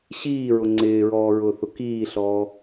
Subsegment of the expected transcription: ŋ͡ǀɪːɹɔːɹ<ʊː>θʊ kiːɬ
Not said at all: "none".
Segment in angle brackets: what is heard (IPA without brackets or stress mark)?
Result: ʊː